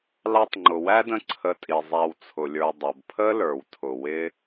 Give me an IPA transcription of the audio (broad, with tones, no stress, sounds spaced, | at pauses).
l ɑ˦ tˤ ŋ͡ǃ ʊ˩ w æ˥ d ə̃˦ ǀʰ ə˨ tʼ i˩ zˤ æ˨ w t͡sʰ ʊ˩ lʲ ə˞˨ dˤ ʌ˩ b pʰ ə˥ l ə˞˩ w tʰ ʊ˩ w ɪ˥